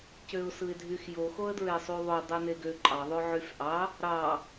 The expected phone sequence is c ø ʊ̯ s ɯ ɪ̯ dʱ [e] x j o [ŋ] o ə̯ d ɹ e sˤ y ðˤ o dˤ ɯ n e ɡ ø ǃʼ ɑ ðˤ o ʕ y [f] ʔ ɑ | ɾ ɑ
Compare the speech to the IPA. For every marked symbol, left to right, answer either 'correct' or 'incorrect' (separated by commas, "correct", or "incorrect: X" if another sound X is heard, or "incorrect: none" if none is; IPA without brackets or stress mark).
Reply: incorrect: y, incorrect: x, correct